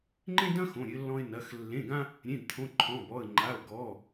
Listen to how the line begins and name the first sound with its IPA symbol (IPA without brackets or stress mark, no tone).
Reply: ŋ͡ǃ